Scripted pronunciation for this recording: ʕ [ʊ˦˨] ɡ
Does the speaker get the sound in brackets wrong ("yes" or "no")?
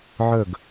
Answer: yes